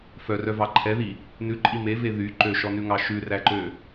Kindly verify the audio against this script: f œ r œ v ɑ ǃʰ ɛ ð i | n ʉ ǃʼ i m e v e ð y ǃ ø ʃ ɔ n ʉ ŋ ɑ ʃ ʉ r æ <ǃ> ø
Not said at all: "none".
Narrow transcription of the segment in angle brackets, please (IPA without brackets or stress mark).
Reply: ǃ